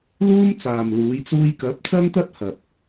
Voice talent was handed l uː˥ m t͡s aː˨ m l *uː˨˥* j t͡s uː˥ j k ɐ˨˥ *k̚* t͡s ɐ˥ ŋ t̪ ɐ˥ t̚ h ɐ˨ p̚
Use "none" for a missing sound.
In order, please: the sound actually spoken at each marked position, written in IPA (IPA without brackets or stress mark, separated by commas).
uː˨˥, p̚